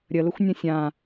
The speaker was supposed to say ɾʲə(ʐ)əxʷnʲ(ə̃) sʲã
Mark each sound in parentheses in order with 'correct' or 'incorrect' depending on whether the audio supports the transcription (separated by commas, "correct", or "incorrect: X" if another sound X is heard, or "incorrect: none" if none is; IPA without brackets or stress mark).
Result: incorrect: l, correct